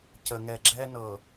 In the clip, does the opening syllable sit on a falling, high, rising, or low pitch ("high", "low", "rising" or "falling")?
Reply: low